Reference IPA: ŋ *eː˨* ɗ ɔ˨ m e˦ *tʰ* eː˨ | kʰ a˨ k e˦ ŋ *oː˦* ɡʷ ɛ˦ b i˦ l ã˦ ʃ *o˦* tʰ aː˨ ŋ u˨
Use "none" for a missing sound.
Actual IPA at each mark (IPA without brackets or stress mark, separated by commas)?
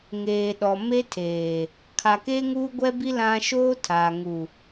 eː˨, tʰ, uː˦, oː˦